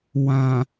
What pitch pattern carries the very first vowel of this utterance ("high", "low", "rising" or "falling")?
low